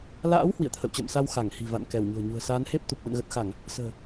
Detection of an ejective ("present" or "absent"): absent